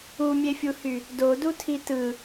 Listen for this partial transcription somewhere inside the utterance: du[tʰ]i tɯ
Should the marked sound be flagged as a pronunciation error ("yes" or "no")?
no